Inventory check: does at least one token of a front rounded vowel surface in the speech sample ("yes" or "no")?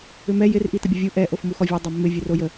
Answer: yes